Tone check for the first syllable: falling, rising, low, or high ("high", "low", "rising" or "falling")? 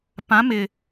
rising